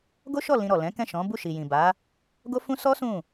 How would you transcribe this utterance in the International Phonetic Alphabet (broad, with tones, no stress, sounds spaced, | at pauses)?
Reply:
ɡ o˦ ʃ ɔ˦˨ l ĩ˧ ɾ ɔ˨ l ɛ̃˨˦ k ɛ̃˦˨ ʃ ɔ̃˨˦ b u˦˨ ʃ i˨ j ĩ˨ b a˨˦ | ɡ o˦ f ũ˦ s ɔ˦ s ũ˦˨